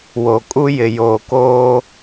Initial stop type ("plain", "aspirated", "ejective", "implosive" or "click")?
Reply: ejective